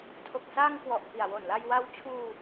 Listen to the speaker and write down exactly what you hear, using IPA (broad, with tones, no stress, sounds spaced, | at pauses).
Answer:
tʰ o˨˩ k̚ s aː˧ ŋ k w ɔ˨˩ ʔ p i˨˩ a̯ w o˨˩ n l a˧ j w a˦˥ w t͡ɕʰ uː˧